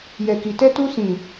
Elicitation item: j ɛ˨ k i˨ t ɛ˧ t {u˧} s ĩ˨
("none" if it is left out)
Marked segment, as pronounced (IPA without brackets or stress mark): u˧